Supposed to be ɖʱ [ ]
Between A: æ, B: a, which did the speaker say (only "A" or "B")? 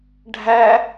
A